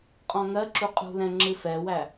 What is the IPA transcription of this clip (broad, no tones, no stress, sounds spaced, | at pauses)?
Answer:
qʼ ɔ̃ ŋ ɜ ǁ u qʼ ṳ l ɛ̃ ŋ͡ǁ ɨ f ɛ w æ